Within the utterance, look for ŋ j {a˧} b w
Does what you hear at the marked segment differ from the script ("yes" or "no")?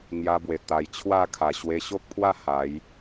no